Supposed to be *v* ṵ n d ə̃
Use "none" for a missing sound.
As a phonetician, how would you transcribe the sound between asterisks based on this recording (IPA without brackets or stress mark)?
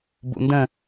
b